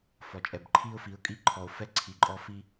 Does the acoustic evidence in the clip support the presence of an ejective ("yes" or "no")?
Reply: yes